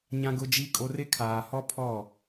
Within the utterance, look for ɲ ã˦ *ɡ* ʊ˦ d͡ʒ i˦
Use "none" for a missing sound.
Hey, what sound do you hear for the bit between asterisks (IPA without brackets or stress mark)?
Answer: ɡ